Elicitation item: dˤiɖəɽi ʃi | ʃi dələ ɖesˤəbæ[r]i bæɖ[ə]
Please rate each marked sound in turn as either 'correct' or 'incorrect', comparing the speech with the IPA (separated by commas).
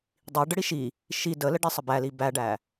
incorrect, incorrect